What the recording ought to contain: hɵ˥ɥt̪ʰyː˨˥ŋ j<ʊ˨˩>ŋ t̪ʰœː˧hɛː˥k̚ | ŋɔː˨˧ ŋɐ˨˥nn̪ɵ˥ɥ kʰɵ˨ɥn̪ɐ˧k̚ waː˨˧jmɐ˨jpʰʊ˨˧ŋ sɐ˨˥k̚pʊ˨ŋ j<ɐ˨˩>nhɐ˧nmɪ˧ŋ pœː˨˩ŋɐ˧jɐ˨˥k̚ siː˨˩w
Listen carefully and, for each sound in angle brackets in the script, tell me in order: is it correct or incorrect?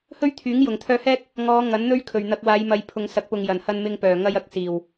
correct, correct

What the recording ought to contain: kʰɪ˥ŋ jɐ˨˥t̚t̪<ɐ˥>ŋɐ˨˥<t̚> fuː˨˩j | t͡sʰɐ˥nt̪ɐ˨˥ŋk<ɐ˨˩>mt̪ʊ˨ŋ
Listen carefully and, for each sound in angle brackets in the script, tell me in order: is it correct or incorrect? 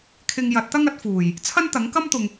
correct, correct, incorrect: ɐ˥

